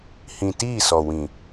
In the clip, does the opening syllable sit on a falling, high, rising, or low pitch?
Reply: low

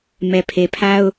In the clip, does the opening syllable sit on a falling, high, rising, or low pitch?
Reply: low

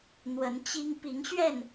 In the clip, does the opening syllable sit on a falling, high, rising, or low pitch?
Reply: rising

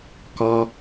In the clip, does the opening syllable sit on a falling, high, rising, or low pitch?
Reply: high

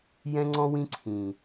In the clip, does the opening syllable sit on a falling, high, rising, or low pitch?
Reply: high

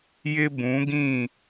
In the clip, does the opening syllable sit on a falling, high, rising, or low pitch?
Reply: high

